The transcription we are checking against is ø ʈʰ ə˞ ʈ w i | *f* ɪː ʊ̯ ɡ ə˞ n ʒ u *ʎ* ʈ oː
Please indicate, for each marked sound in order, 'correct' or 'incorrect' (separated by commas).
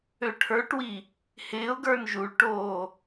incorrect, incorrect